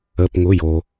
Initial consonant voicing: voiceless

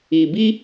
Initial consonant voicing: voiced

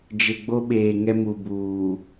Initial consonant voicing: voiced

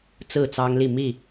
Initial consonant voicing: voiceless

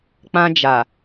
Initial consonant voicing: voiceless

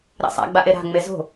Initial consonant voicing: voiced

